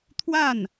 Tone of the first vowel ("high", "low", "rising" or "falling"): falling